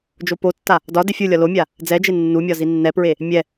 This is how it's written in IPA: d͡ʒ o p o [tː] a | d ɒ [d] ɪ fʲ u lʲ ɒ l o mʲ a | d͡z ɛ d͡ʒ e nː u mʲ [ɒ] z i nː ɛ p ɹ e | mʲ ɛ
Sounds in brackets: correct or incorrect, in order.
correct, correct, correct

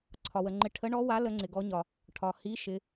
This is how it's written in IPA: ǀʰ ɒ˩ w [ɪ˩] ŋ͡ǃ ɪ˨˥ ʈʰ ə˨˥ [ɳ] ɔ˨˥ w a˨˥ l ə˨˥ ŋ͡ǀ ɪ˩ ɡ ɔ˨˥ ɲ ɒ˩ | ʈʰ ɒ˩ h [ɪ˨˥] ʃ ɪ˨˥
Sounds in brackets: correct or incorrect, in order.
incorrect: ə˩, correct, incorrect: i˨˥

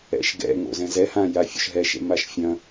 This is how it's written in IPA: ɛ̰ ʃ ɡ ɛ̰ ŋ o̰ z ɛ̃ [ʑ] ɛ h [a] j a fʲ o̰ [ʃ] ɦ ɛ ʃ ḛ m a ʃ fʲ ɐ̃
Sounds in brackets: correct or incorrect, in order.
incorrect: z, incorrect: ã, correct

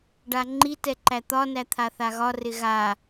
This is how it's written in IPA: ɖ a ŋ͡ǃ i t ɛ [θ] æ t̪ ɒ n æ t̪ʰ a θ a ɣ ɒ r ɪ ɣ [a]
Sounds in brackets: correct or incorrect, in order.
incorrect: ǃ, correct

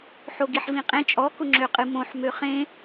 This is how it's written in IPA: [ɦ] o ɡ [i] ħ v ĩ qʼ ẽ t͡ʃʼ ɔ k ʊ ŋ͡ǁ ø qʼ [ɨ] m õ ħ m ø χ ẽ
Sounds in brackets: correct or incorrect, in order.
incorrect: ħ, correct, correct

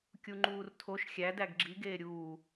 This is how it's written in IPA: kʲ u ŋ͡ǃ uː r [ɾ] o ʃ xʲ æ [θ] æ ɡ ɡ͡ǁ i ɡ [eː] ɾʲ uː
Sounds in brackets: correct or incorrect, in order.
incorrect: tʰ, incorrect: d, correct

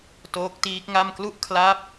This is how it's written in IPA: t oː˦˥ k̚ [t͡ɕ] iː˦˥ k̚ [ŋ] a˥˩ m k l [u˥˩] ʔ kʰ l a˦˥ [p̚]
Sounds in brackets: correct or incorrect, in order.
incorrect: t, correct, correct, correct

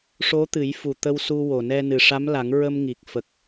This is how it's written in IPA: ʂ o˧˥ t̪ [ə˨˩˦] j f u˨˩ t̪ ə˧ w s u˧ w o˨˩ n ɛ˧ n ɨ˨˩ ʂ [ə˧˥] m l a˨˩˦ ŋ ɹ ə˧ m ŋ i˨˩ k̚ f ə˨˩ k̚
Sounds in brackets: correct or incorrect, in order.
incorrect: ɨ˨˩˦, incorrect: a˧˥

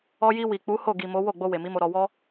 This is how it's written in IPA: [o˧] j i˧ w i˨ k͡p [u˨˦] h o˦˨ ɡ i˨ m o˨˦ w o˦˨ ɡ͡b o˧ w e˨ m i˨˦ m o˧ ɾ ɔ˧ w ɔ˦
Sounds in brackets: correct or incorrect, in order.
incorrect: ɔ˧, correct

